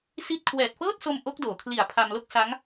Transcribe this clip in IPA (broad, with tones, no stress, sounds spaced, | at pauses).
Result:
s i˥˩ t̚ kʰ w ɛː˨˩ t̚ f ɤː˥˩ t̚ s o˧ m ʔ o˦˥ k̚ d oː˩˦ kʰ l i˨˩ a̯ pʰ a˧ m l o˥˩ k̚ s a˦˥ ŋ